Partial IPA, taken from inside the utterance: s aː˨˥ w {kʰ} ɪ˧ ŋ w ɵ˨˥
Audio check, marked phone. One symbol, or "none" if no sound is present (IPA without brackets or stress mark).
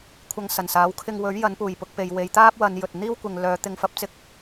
kʰ